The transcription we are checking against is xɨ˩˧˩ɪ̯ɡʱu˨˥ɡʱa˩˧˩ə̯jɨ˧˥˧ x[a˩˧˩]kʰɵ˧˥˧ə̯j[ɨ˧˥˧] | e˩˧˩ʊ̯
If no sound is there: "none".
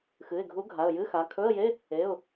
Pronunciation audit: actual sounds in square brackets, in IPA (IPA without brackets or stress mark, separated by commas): a˩˧˩, e˧˥˧